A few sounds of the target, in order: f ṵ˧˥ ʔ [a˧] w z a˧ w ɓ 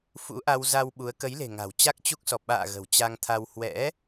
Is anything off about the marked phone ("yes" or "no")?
no